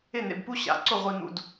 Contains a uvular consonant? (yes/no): yes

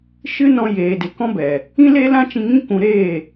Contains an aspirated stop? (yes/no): no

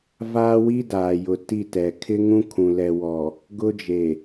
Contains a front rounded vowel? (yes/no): no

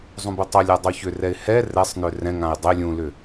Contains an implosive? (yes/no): no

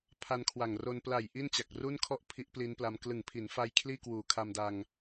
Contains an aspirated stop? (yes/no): yes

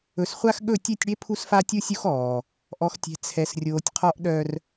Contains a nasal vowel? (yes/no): no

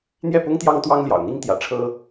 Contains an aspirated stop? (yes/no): yes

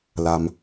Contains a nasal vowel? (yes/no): no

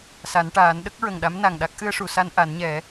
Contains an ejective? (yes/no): no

